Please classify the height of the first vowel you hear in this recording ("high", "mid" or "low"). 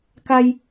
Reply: low